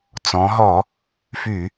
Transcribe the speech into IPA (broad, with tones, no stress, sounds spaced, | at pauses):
t͡s ɔ̃˩˧ ɦ ɔ˧˩˧ | f y˧˩˧